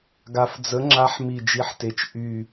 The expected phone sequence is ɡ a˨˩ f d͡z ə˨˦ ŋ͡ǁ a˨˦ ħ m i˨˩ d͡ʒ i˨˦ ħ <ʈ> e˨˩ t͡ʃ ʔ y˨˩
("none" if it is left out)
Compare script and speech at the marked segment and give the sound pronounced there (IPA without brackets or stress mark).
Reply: t